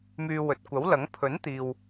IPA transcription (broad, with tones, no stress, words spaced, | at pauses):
myː˧ wɵ˨t̚kʷɐ˨˥wlɐ˨˥ŋ pʰɵ˨˥nt̪iː˨w